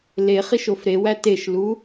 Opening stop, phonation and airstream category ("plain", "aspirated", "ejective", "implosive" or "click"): plain